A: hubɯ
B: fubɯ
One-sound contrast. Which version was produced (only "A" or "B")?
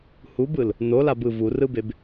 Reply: A